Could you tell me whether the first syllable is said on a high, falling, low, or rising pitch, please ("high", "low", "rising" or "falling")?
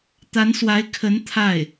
rising